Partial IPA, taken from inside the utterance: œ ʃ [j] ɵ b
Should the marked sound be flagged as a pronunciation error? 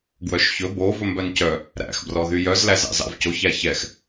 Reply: yes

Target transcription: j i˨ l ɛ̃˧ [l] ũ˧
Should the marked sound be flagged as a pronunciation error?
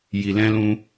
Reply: no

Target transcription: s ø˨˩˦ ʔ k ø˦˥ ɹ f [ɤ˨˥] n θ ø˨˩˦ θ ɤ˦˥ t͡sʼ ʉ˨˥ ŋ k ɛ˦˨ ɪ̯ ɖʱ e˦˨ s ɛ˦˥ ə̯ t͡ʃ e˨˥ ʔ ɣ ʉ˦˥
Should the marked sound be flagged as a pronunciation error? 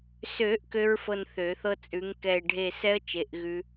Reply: yes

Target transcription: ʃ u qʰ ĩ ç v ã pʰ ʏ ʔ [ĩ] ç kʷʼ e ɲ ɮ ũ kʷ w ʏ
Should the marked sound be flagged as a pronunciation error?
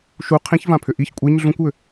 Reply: yes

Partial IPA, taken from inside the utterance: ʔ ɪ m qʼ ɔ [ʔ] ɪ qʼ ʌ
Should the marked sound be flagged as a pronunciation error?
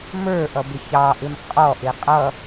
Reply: no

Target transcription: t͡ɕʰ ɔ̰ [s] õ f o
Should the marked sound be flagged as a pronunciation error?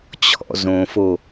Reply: yes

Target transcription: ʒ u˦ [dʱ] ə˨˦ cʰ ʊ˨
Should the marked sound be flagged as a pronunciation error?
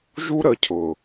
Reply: yes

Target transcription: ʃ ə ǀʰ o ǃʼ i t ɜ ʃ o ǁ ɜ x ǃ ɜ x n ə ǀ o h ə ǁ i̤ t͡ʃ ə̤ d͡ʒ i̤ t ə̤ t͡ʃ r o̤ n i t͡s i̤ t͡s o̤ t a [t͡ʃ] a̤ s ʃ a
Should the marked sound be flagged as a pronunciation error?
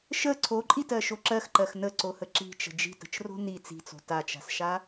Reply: no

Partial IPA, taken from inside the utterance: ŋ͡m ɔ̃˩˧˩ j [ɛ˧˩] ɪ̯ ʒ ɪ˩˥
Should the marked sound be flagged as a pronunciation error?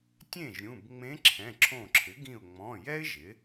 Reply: yes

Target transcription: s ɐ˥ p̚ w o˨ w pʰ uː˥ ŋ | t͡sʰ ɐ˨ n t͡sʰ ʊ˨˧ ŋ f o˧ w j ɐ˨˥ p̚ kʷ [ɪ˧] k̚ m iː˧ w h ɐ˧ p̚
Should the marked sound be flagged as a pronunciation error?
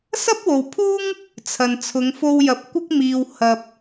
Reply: yes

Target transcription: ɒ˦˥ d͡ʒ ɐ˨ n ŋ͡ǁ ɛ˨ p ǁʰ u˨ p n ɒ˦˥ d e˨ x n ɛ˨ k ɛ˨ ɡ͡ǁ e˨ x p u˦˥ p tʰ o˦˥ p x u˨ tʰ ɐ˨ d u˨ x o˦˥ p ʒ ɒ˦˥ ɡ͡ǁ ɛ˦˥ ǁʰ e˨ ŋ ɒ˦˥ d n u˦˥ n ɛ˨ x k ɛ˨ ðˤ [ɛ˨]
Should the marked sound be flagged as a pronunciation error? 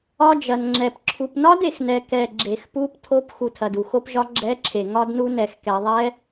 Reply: yes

